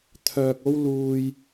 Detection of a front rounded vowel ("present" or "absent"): present